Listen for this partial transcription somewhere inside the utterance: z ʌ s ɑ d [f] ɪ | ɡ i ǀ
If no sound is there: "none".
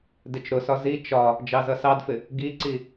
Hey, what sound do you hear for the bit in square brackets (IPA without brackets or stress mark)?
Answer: f